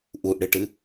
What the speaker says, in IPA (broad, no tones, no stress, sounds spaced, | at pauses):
ʔ u ʔ ɽ ɨ ʈ ɨ